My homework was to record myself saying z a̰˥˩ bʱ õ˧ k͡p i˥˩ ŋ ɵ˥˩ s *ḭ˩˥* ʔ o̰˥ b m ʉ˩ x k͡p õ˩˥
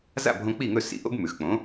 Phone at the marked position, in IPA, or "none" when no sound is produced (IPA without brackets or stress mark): ḭ˧